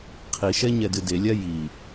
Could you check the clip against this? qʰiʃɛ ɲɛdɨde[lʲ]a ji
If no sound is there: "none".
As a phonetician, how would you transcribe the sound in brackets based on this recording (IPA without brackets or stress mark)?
lʲ